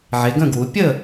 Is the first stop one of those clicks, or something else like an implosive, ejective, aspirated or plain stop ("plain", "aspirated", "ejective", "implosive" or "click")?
plain